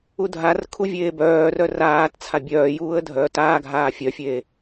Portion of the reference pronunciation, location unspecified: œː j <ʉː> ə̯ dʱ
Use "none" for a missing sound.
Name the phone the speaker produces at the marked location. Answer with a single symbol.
uː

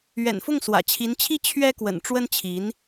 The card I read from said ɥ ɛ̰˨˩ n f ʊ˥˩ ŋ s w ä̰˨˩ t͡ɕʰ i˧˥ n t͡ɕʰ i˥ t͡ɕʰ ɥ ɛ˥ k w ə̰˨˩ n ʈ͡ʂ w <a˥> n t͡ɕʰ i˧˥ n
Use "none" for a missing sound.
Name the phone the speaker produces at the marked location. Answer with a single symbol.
ə˥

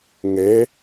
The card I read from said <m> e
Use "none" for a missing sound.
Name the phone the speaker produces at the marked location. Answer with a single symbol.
ŋ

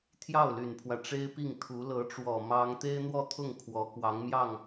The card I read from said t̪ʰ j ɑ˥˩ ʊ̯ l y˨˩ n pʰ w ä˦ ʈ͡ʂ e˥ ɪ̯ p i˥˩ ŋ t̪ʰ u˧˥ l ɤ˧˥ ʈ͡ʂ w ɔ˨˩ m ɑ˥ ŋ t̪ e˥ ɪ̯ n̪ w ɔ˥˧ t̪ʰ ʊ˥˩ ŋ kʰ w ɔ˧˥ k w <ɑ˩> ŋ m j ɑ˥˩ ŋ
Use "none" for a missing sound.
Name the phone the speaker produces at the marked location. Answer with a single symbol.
ɑ˧˥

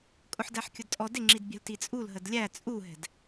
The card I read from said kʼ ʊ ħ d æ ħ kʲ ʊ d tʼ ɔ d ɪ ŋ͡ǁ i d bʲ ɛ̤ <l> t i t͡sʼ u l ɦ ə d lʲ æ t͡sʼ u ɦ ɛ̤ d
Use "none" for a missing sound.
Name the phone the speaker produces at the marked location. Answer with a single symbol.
l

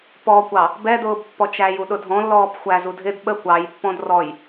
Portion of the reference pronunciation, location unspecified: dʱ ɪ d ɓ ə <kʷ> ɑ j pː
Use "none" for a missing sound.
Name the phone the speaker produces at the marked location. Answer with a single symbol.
kʷ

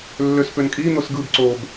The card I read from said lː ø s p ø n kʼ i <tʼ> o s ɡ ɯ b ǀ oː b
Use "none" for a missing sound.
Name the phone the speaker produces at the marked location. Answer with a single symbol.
n̪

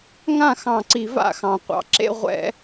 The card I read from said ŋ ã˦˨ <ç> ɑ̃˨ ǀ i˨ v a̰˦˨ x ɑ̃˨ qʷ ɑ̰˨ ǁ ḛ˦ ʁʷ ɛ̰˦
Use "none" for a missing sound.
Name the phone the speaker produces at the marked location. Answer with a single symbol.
x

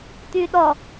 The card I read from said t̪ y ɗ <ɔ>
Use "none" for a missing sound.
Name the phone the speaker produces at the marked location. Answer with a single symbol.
ɔ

